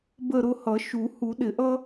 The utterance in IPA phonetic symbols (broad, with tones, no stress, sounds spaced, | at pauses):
b ə˦˨ ɾ ʊ˦˨ h ʌ˨˩˦ ʃ u˨˩˦ h u˨˩˦ ɗ ɪ˨˩˦ ʔ ʌ˥